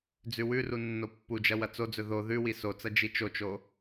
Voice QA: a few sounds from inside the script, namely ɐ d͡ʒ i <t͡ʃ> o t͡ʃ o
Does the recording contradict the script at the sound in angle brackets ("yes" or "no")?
no